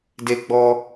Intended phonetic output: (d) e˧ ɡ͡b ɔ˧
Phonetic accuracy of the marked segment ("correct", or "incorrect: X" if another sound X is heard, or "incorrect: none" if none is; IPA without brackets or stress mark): correct